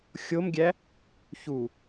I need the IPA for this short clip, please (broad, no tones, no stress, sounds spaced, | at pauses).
xʲ o m ɡʲ æ | ç u